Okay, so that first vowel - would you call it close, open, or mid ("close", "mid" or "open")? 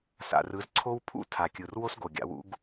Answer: open